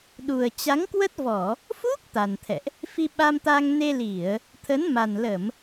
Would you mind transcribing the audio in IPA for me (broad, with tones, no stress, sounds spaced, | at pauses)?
ɗ u˨˩ ə̯ t͡ɕ a˨˦ ŋ k w ə˦˥ t̚ v ɔ˧˩˨ | f u˦˥ k̚ t̪ a˨˩ n t̪ʰ ɛ̰˧˨ ʔ | f i˧ ɓ a˧ m t̪ a˧ ŋ n e˧ l i˧˩˨ ə̯ | t̪ʰ ə˨˦ n m a˨˩ n l ə˧˩˨ m